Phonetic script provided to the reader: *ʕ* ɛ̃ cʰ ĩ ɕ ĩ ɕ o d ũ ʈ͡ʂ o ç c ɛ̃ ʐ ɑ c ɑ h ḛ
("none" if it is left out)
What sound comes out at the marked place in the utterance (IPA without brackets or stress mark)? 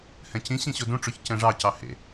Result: h